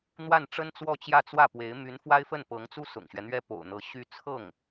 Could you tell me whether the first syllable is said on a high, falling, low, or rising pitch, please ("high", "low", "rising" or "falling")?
falling